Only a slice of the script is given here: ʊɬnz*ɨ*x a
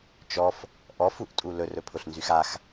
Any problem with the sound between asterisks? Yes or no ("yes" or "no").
yes